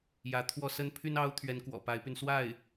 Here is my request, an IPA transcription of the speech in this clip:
j ä˧˥ t̪ʰ w ɔ˥˩ s ə˥ n pʰ y˥ n ɑ˥ ʊ̯ t̪ʰ ɥ ɛ˧˥ n k w ɔ̰˨˩ p a˧˥ ɪ̯ p y˧ n s w a˥˩ ɪ̯

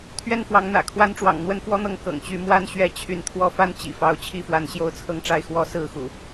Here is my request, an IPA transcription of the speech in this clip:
t̪ʰ ɥ ɛ˥˨ n f w ɑ˨˦ ŋ n̪ ä̰˨˩ kʰ w a˦ n ʈ͡ʂ w ɑ̰˨˩ ŋ n̪ w ə˦ n f w ɔ˦ n̪ ɤ˥˨ ŋ k ɤ̰˨˩ ŋ t͡ɕ y˨˦ m w a˥˨ n ɕ ɥ ɛ˦ t͡ɕʰ y˨˦ n t̪ʰ w ɔ˨˦ f a˦ n t͡ɕ ḭ˨˩ f ɑ˨˦ ʊ̯ t͡ɕʰ i˥˨ f w a˨˦ n ɕ j o˦ ʊ̯ t͡sʰ ɤ˥˨ ŋ ʈ͡ʂ a˥˨ ɪ̯ x w ɔ˦ s ɹ̩˥˨ x ṵ˨˩

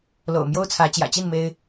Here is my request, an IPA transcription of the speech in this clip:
l o̰˨˩ ʊ̯ m j o˦ ʊ̯ t͡sʰ ä˨˦ t͡ɕ j ä̰˨˩ t͡ɕ i˥˨ n m e˦ ɪ̯

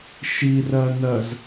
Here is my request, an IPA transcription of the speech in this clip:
ʃ i r ɜ n ɜ z

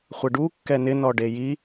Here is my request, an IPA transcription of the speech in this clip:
χʷ ɪ ɖ u kː ɛ n ɪ n ɔ ɖ e j i

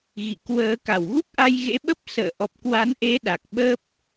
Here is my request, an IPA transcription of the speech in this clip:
ɣ ḭ˧˨ k w əː˨˦ k a˧˩ w ɣ u˦˥ k̚ ʔ a˧ j ɣ ḛ˧˥ ɓ ə˦˥ p̚ s ə̰ː˧˨ ʔ ɔ˨˩ p̚ k w a˨˦ n ʔ e˨˦ ɗ a˨˩ k̚ ɓ ə˦˥ p̚

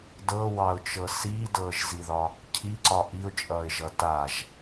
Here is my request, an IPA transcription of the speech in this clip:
d ɤ w ɑ ʊ̯ t͡ʃ ɤ s iː d ɤː ʒ z i ð ɒ | cʰ i ǀ ɒ ʔ i ʊ̯ t͡ʃʼ ʌː ɪ̯ ʒ ʌ t a ʒ

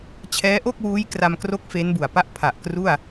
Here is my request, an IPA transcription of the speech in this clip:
t͡ɕʰ ɛː˦˥ ʔ o˥˩ k̚ w uː˦˥ j k r a˧ m k r o˦˥ k̚ f e˦˥ n b u˨˩ a̯ p a˥˩ ʔ pʰ a˨˩ ʔ k r u˥˩ a̯

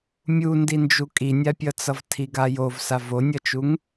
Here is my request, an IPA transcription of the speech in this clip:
mʲ u n d i n d͡ʒ u kʼ i nʲ a pʲ ʌ t͡s ʌ v tʰ i ɡ a j o v s a v o nʲ ʌ t͡ʃ u ŋ

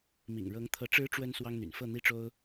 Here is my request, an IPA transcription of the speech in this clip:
m ḭ˨˩ ŋ ɻ ɤ˧˥ ŋ t̪ʰ ɤ˧˥ ʈ͡ʂ ɻ̩˧˥ ʈ͡ʂ w ə˥ n s w ɑ˥ ŋ n̪ y̰˨˩ n f ɤ˥˩ n̪ i˥ ʈ͡ʂ o˥ ʊ̯

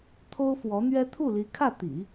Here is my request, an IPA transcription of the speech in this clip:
t̪ʰ o˥ ʊ̯ f w ɔ˧˥ n̪ ɥ ɛ˥ t̪ʰ u˥˩ l i˧˥ kʰ ä˥˩ t̪ ḭ˨˩˦

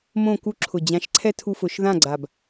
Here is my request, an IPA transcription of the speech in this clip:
m õ˥˨ k u˦ ǁʰ ʊ˨˩ d͡ʑ ã˨˦ ʃ ǀʰ ɛ˦ tʰ u˦ f ʊ˨˦ ʃ ð ã˥˨ ɡ͡ǀ a˨˩ b

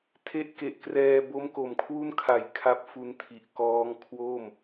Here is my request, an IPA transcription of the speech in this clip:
tʰ e˦˥ ʔ k e˨˩ ʔ k r ɛː˧ b o˦˥ m k o˨˩ m kʰ w u˥˩ n kʰ a˨˩ j kʰ a˦˥ p̚ f u˧ n tʰ i˨˩ ʔ k ɔː˦˥ ŋ kʰ w o˥˩ m

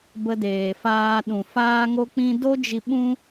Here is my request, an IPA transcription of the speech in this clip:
b ə˧ d eː˨ f aː˧ ɗ ũ˨ f aː˦ ŋ o˦ k͡p ĩ˦ d o˦ d͡ʒ i˧ ɓ ũ˦

